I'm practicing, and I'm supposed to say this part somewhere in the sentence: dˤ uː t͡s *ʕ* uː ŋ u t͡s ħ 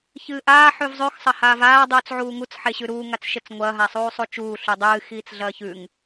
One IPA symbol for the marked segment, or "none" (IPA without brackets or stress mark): ʕ